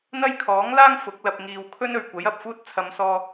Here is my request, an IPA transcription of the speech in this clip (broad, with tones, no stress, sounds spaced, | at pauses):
n̪ ɐ˥ j kʰ ɔː˨˥ ŋ l aː˥ ŋ f ʊ˨˥ k̚ l ɐ˧ p̚ ŋ iː˨ w kʰ ɵ˥ n ɵ˨ ɥ kʷ ɐ˨˥ j ɐ˨ p̚ f uː˥ t̚ t͡sʰ ɐ˨˧ m s ɔː˧